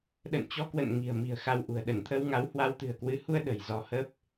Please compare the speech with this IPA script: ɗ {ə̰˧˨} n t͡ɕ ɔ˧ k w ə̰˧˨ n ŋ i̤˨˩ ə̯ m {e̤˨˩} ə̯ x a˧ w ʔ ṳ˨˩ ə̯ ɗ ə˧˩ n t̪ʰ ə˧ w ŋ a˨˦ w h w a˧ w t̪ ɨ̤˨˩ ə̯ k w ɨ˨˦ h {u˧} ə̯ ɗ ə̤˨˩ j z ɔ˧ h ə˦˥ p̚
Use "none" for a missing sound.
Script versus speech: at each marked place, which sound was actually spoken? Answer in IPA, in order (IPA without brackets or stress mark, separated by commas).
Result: ə̰˧˨, i̤˨˩, u˧